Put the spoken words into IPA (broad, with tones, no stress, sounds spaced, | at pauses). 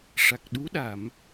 ʂ a˨˩ k̚ ɗ u˧˥ ɗ a˨˩˨ m